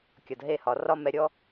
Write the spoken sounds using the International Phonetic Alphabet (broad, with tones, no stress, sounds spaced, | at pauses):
kʲ ɒ˨ d ɦ e˧ h ɒ˨ r ɒ˧ m ɛ˨ ɾʲ ɔ˧